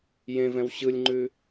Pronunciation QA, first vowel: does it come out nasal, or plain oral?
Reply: nasal